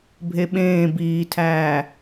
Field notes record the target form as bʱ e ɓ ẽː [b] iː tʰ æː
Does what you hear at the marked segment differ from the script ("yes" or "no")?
no